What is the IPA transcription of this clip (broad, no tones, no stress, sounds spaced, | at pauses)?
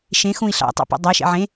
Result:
ʃ ẽ x ũ i̯ ɬ ɑ̰ tˤ ḛ p ṵ dˤ a ʃ ḛ ʕ ẽ